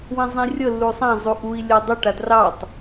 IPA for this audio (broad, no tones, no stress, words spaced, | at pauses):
wĩzˤĩrʲɤ lːusˤã zˤuʔui̯ lʲɔdˤu ʈadrɑtˤ